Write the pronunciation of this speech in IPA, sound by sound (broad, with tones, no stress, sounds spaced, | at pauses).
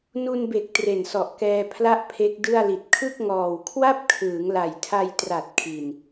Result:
n u˧ n b e˨˩ k̚ t r e˨˩ n s ɔ˨˩ ʔ k ɛː˧ pʰ l a˥˩ ʔ pʰ e˦˥ k̚ d ɯ˥˩ a̯ l i˨˩ t̚ kʰ ɯ˥˩ k̚ ŋ ɔː˨˩ w kʰ w a˥˩ p̚ kʰ ɯː˩˦ ŋ l a˨˩ j tʰ a˧ j t r a˨˩ t̚ kʰ i˨˩ n